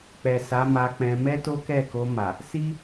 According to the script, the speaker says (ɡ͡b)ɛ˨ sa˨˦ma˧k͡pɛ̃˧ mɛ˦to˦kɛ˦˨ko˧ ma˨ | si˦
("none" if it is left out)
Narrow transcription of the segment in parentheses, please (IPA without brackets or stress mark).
k͡p